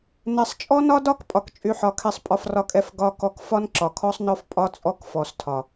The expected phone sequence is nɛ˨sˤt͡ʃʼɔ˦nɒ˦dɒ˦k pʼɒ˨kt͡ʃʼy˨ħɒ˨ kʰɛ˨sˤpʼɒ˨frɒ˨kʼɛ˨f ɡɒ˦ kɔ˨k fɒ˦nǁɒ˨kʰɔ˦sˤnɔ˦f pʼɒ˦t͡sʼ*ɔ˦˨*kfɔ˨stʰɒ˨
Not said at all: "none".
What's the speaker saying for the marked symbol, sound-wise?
ɔ˦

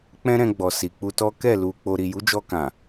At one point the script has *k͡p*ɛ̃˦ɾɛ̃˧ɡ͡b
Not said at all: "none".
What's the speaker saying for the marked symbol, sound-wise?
k͡p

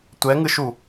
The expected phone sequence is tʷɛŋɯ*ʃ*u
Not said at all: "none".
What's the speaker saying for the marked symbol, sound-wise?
ʃ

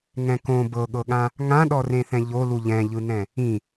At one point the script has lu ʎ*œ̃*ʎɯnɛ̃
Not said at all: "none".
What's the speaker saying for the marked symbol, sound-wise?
ɛ̃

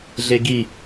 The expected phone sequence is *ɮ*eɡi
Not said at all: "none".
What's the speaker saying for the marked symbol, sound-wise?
ɮ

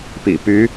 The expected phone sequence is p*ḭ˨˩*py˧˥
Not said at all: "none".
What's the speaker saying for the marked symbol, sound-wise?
ḭ˨˩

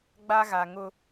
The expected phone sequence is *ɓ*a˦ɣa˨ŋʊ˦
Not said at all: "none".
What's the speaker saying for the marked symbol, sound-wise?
ɡ͡b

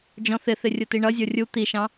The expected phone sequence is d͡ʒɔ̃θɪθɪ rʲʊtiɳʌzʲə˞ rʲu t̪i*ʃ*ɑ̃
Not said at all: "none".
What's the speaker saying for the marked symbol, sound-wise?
ʃ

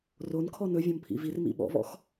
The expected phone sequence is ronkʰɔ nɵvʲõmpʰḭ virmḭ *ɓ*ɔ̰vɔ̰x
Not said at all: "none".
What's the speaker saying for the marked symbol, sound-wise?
ɓ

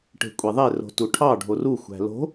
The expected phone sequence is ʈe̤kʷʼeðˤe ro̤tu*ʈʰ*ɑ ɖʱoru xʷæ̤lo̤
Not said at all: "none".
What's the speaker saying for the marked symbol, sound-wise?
ʈʰ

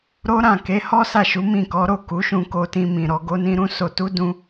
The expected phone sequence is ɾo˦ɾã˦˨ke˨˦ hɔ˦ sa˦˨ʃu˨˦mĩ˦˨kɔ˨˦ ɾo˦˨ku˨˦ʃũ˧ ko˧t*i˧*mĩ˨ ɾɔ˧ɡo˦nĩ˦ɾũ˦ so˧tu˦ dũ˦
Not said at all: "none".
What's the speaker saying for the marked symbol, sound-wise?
ĩ˧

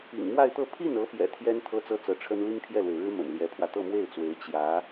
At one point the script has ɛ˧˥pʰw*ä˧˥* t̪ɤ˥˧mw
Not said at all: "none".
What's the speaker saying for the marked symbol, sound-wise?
ä˧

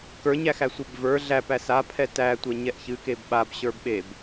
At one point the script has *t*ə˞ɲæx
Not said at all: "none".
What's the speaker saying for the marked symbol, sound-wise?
k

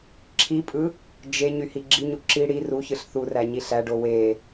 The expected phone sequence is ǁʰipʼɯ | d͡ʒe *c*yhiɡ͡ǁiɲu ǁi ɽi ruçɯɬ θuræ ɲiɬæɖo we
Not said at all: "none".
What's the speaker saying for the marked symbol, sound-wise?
ɲ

